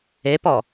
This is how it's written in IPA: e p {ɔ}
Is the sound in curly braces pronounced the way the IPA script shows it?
yes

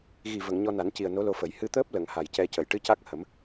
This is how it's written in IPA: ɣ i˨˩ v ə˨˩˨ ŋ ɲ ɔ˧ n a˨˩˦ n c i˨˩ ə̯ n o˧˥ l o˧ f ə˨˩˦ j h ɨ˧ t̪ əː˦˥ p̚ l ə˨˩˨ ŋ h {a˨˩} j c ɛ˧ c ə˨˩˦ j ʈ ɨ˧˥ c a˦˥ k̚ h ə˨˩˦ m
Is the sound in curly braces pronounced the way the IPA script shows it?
yes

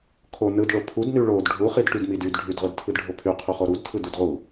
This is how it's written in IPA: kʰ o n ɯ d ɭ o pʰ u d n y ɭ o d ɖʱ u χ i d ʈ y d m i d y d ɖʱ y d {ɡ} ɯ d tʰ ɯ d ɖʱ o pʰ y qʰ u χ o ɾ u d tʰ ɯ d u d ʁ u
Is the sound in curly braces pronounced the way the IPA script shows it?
no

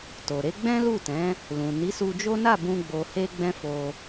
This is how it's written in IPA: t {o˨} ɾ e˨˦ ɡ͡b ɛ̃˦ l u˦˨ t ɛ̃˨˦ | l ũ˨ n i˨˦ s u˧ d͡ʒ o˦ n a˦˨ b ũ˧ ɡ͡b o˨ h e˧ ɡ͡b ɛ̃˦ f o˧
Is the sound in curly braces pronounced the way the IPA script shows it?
yes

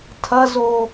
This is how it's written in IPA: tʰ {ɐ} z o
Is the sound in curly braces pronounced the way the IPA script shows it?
yes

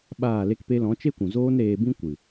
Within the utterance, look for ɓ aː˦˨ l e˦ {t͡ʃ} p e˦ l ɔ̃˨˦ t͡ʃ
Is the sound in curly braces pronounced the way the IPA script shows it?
no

